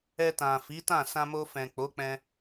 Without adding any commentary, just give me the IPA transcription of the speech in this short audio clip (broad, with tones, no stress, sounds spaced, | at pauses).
ɛ˧ t ã˨ f i˨˦ t ã˦˨ s ã˧ m o˧ f ɛ̃˨ k͡p o˨˦ k͡p ɛ̃˧